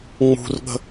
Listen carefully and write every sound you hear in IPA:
ŋ͡mṳrɠə̤

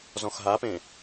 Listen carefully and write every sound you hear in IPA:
zɔ̃xɦapẽ

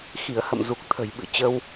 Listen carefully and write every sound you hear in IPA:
xi˧˩ə̯hə̰˧˨m zu˨˩k̚t̪ʰə̤˨˩jɓɨ̰˧˨t͡ɕə˧w

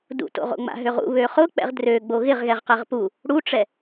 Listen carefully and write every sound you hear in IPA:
dṵto̰ʁ o̰ŋ͡ma̰ɦøʁṵ βøχʊk͡pɛ̰ʁ drø ɡ͡boɣɪʁɣɛʁ qɛʁpu | ɽuʈ͡ʂɛ

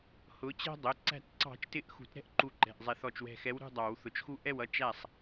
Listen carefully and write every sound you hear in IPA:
hʊ˨˦t͡ɕɛ̤˦ dˤʊ˩˧˩ ǀæ̤˧˩tǀɑ̤˨˩˦t͡ʃtɪ˨˦ʔ xṳ˨˩˦tɾɛ̤˦ʔǃu˧˩ǃɛ̤˩˧˩ʔ zˤɛ˨˩˦θɔ˧˩t͡ʃwɛ̤˧˩xɛ˨˦w ɾṳ˥˨dˤɑ˨˩˦w θʊ˧˩t͡ʃxu˦ ʔɛ˥˨wʌ˦ t͡ʃæ˥˨sˤ

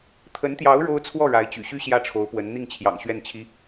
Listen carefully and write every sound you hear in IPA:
t̪ʰə˧˥nt̪jɑ˧˥ʊ̯ ɻo˥ʊ̯ t͡sʰwɔ˥˩ ɻa˧˥ɪ̯ t͡ɕy̰˨˩ɕy˥ ɕjä˥˩ʈ͡ʂʰo˧˥ʊ̯pwə˧˥n n̪i˥˩ŋt͡ɕʰjɑ̰˨˩ŋ ɕɥɛ˥˩nt͡ɕʰi˧˥

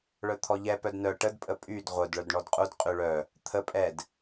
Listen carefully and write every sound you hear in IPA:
ɭœt̪ʰɔʎɛ pœdnœ ʈəd pʼəpʼyd ʁʷœd ɭœdɳɔdqʼud qʼyɭœ | t̪ʰə pʼɛd

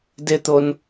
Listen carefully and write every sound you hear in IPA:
dɪt̪on

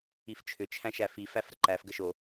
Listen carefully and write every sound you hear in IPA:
ift͡ʃʰʏ t͡ʃʰæ̃ʃæfi fæfɾəǃæf ɡəʃo

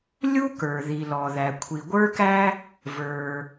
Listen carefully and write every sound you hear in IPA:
lʲu˥kə˞˩ ði˩lɔ˩ðæ˩ kʷʰi˩ɡʷə˞˥kæ˥ | və˞˩

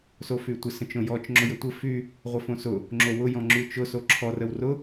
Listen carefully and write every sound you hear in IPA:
sofytʷɪ sə̃t͡ʃõjɔt͡ʃ ŋ͡ǁʊjɘtʷɘ fy | ʁʷɪfõsʊ | ŋ͡ǁowʊ jɔ̃ŋ͡ǁyt͡ʃʊ soǁʰɔr əwrʊ

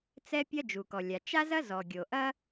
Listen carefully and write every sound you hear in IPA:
t͡sɛ˥pʲɐ˥ d͡ʒu˩kɔ˩lʲa˩ t͡ʃa˥zɐ˥zɔ˩ ɡʲo˩ʔɐ˥

